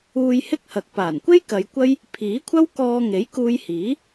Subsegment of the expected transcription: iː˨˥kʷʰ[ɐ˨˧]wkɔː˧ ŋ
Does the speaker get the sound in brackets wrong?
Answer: yes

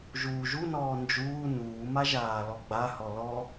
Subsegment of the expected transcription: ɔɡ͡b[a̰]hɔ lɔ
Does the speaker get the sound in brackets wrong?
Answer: yes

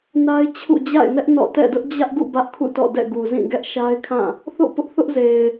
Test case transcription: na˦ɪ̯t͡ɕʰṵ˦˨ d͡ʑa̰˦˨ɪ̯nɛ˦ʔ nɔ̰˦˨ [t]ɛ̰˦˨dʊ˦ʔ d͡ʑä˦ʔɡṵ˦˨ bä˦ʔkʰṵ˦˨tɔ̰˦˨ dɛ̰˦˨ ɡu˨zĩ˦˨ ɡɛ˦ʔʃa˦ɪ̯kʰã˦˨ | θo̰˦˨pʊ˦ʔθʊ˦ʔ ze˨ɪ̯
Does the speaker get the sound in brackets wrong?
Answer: no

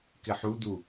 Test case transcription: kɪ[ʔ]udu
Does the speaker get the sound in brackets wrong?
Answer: yes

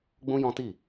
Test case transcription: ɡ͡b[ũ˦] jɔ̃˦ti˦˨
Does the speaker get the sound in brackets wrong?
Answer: no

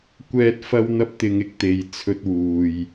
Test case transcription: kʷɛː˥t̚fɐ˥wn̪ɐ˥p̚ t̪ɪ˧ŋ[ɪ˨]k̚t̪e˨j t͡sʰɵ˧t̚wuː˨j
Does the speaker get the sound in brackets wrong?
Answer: yes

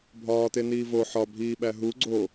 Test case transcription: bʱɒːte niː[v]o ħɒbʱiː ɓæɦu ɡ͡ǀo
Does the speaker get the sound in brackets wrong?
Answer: no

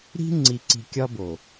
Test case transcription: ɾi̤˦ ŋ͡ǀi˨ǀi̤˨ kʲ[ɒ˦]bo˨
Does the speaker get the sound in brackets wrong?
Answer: no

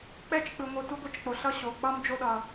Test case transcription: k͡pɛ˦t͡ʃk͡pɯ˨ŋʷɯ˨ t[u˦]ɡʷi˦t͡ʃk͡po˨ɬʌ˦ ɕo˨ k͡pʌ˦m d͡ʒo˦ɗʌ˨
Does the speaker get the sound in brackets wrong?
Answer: no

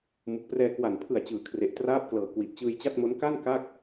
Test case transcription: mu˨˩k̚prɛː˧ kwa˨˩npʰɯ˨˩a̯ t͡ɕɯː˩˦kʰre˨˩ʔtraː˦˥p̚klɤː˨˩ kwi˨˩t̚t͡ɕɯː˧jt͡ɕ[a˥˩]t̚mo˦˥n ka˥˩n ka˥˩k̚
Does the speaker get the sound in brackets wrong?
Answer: no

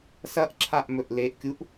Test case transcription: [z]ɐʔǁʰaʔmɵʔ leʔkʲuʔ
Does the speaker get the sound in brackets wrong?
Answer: yes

